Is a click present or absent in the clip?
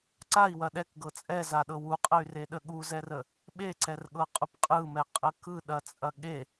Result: present